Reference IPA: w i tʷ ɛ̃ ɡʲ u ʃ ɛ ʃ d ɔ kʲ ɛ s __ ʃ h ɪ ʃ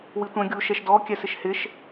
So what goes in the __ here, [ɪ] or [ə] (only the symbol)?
ɪ